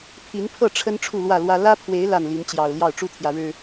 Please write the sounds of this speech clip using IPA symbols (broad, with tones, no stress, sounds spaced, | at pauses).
pʰ i˨˦ n pʰ ɤ˥˨ ʈ͡ʂʰ ə˦ n ʈ͡ʂʰ u˥˨ l w ä˥˨ l w ä˦ l ä˦ pʰ w e˨˦ ɪ̯ l a˥˨ n l i˨˦ n t͡ɕ j ɑ˨˩ ʊ̯ l j ɑ˥˨ ʊ̯ ʈ͡ʂ u˥˨ t̪ʰ j ä˩ ɻ ɻ̩˨˩